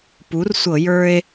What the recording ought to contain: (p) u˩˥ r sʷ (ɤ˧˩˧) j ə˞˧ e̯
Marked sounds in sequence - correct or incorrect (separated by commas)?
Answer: correct, correct